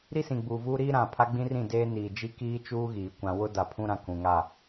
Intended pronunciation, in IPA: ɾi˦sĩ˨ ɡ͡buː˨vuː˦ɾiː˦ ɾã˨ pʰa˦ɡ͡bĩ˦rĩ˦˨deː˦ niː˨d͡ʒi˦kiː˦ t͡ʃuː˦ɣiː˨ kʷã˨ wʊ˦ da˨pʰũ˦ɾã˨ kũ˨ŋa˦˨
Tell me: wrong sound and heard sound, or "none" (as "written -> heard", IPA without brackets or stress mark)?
none